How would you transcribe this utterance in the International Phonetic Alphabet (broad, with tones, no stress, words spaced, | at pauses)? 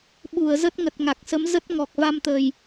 ɓu˧˩ə̯zə˦˥t̚ ŋə˨˩t̚ŋa˨˩k̚sə˨˦m zə˦˥t̚ŋɔ˨˩k̚va˧mt̪ə˨˩j